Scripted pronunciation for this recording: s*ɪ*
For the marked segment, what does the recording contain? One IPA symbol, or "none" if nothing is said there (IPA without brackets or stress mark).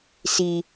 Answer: i